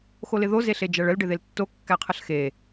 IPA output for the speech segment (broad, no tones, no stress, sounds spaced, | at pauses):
x o l ɪ ð o z e ɬ e d͡ʒ æ ɭ ə l ɖ ɪ ð e l tː o kː æ qʰ ə ɬ x e